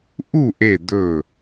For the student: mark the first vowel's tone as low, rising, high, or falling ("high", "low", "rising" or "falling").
falling